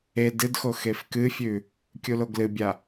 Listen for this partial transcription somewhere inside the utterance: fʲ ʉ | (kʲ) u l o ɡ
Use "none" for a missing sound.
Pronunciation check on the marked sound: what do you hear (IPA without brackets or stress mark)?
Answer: kʲ